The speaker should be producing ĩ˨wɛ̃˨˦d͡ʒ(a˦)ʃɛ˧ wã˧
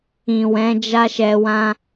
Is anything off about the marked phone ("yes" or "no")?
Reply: no